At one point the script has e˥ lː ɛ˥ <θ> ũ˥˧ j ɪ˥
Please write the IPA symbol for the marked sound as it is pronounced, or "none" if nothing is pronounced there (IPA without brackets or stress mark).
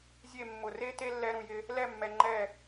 ɾ